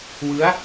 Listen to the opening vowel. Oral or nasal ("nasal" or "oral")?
oral